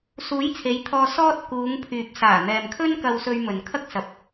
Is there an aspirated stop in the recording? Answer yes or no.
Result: yes